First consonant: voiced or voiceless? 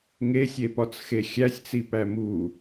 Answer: voiced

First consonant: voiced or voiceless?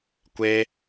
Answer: voiceless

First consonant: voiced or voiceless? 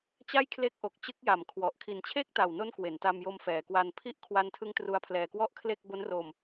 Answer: voiceless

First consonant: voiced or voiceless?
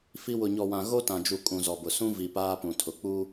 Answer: voiceless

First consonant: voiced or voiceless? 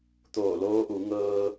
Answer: voiceless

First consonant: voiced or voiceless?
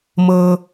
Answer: voiced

